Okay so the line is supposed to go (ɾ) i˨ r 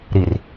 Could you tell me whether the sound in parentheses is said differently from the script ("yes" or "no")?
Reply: no